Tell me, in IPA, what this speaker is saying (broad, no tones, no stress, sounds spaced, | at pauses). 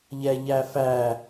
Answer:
ʎ ɛ ʎ æ f æ